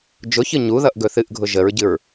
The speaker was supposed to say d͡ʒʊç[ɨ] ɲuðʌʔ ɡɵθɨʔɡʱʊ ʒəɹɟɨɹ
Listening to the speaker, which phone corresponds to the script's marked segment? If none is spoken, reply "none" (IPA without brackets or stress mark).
ɨ